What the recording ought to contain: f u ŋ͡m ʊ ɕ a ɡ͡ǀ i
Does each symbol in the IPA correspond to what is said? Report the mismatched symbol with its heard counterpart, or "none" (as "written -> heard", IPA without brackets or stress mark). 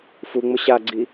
none